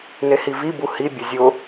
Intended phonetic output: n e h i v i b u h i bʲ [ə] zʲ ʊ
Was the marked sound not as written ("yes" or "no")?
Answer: no